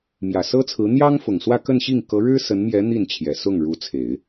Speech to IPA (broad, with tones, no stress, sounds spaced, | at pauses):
m j ä˨˩ s ɤ˥ t͡sʰ ɹ̩˧˥ n̪ j ɑ˥ ŋ f ʊ˨˩ ŋ s w ä˥˧ k ə˥˧ n ɕ i˥˩ ŋ k ɤ˧˥ ɻ ɻ̩˥ s ə˧˥ n m j ɛ˧˥ n̪ i˥˩ n t͡ɕʰ j ɛ˨˩ s ʊ˥˩ ŋ ɻ u˧˥ t͡sʰ e˨˩˦ ɪ̯